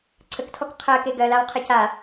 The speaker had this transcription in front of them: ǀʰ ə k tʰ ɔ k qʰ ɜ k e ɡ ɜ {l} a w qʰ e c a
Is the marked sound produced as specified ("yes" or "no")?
yes